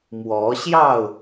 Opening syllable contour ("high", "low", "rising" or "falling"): rising